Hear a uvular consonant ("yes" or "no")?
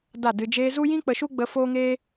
no